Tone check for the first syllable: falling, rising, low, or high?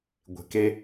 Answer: low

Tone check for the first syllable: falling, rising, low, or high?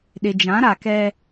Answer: low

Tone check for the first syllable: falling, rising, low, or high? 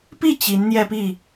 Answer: falling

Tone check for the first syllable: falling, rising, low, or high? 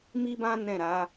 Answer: high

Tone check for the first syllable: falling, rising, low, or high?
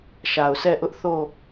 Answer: low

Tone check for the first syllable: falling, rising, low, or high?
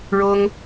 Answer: high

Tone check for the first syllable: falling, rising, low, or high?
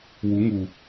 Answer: rising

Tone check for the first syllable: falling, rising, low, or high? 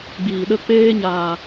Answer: low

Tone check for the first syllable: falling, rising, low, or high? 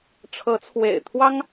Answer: rising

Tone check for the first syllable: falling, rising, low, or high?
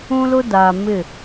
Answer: high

